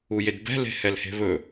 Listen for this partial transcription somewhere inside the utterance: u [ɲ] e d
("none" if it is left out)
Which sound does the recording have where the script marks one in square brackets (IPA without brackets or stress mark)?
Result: j